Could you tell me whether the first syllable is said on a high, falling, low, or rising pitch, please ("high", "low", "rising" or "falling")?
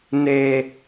low